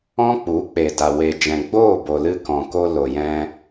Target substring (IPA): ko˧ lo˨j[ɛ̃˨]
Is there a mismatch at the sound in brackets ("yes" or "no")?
yes